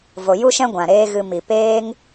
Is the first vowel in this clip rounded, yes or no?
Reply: yes